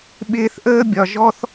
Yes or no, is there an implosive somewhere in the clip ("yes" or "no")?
yes